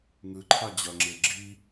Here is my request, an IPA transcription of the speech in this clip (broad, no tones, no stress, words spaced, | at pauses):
ŋɯǃʰa d͡ʑʌŋ͡ǁe ɡ͡ǁi